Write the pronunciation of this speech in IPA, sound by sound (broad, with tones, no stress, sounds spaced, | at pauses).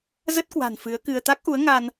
z ə˦˥ t̚ k w a̤˨˩ n f ɨ˨˦ ə̯ k ɨ˧ ə̯ t̪ a˦˥ k̚ ʔ u˨˦ ə̯ ŋ a˧ n